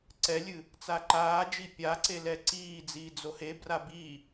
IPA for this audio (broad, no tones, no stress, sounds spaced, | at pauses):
ǀ ɛ lʲ ɨ | t͡s a ǃ aː d͡ʒ i pʲ a ǀ e l ɛ ǀ iː d͡z iː d͡z o h e b r a b i